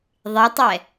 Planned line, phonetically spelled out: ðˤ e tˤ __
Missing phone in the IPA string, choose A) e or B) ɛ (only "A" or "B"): B